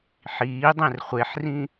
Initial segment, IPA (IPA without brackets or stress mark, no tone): ħ